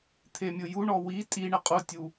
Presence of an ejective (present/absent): present